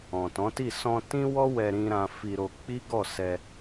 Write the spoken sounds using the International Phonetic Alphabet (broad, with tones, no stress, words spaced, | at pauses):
ɔ̃˨tɔ̃˨˦ti˦˨ sɔ̃˧tĩ˦wɔ˦ wɛ˧ɾĩ˧ɾã˧ fi˧ɾo˧ k͡pi˦ɡɔ˦˨ sɛ˧